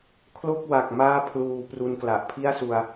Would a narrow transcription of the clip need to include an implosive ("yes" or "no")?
no